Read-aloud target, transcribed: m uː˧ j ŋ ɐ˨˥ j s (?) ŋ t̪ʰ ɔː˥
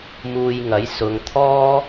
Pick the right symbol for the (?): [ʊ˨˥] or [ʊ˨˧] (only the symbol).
ʊ˨˧